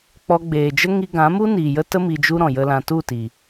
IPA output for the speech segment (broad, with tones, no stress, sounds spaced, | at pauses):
k͡p ɔ˧ ɡ͡b eː˨ d͡ʒ ə˦ ŋ i˧ ɡ ã˨˦ m u˦ n iː˨ j ə˦ t ə˦ m i˧ d͡ʒ u˦ ɾ ɔ̃˨ j ə˦ l ã˧ t u˦˨ t i˨